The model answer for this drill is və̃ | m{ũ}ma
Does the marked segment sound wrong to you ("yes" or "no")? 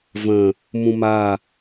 no